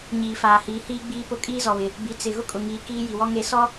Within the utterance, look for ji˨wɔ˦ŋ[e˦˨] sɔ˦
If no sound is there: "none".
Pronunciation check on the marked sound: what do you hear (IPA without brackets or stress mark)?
e˦˨